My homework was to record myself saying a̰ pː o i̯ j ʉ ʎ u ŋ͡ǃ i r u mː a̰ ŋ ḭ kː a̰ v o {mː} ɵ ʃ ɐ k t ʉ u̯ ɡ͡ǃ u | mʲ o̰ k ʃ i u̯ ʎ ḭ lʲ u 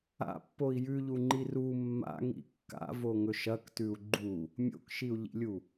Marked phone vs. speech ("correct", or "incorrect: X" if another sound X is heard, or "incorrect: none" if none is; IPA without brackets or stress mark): incorrect: ŋ